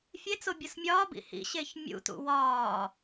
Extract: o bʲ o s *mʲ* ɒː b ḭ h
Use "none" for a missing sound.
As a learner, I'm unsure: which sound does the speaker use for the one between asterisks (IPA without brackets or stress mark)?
mʲ